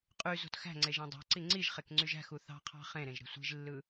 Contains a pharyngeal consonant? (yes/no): no